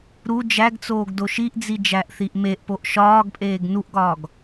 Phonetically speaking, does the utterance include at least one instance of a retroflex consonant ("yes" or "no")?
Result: no